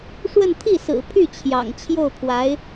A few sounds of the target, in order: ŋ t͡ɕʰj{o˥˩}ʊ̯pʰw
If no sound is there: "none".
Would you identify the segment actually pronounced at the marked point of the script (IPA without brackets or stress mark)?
o˥˩